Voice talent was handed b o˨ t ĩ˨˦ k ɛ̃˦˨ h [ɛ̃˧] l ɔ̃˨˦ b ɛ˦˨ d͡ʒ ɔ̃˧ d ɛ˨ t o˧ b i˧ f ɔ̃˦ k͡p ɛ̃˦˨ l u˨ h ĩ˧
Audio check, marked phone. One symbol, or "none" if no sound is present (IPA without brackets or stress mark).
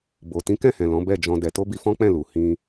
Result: ɛ̃˨